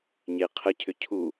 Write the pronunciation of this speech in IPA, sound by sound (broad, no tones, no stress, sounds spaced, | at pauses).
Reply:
ɲ e qʰ ə cʰ ʏ cʰ u